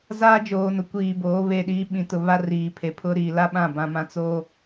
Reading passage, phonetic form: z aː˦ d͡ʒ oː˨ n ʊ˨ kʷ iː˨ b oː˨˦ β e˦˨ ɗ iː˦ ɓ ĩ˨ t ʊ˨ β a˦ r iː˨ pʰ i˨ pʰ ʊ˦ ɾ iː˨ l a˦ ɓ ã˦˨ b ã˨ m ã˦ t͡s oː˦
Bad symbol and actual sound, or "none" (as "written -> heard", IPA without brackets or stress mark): i˨ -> e˨